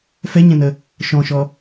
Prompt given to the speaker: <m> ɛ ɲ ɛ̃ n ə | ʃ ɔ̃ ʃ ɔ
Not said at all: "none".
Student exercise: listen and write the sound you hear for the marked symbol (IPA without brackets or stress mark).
f